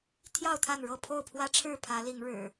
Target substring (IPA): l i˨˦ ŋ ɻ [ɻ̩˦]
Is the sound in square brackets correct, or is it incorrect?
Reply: incorrect